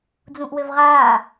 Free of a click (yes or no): yes